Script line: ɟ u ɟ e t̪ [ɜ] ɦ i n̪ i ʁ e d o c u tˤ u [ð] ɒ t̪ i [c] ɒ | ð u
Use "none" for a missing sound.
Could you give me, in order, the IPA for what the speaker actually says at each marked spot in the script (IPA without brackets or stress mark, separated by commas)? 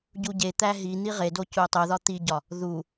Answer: æ, ð, ɟ